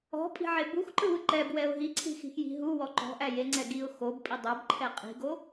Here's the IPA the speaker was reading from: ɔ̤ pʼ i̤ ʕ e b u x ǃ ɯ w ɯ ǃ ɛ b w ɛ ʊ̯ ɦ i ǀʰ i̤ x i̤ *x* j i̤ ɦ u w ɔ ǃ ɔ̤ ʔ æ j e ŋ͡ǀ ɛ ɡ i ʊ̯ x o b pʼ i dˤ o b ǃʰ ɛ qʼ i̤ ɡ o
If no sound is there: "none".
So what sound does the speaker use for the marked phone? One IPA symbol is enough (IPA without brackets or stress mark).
x